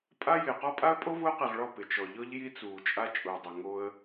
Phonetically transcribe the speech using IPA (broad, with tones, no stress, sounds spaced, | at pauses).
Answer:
pʼ a˦ j ɪː˨ q ɔ˦ pʼ a˦ ə̯ pʼ o˦ v ʊː˦ q i˨ ʁ ɭ ɔ˦˨ p ɪ˨ t͡ʃ ɔ˨ ʎ ɔ˦ ʎ j i˦ t͡s uː˨ t͡ʃʼ a˦ t͡ʃʼ ʊː˨ dˤ ɪ˨ ŋ o˦ ə̯